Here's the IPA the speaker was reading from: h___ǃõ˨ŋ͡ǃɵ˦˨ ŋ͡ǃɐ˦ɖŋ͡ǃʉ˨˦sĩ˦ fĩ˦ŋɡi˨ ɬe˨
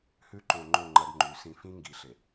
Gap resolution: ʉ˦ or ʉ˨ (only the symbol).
ʉ˦